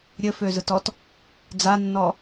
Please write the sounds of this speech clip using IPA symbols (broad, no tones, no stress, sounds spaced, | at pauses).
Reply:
ɾʲ ɘ f ø z ɯ t ɔ t | d͡z a nː ɔ